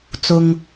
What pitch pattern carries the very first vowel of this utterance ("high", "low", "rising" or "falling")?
low